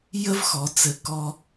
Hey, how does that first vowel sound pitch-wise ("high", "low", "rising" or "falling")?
high